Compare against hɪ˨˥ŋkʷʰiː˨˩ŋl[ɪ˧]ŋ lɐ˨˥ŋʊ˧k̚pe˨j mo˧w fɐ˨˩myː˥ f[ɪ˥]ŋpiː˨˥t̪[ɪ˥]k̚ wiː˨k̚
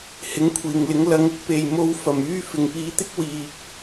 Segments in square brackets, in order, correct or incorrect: incorrect: ɪ˨˥, incorrect: ɪ˨˩, correct

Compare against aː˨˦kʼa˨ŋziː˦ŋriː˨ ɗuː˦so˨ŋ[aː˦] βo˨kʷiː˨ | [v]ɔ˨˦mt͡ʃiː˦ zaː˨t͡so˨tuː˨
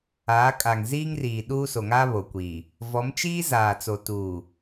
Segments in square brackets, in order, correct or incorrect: correct, correct

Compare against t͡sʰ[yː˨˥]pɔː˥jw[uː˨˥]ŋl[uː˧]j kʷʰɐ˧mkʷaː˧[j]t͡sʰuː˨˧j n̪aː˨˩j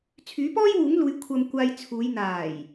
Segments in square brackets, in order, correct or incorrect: correct, correct, incorrect: uː˨˧, correct

